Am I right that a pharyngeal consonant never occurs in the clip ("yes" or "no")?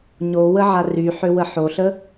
no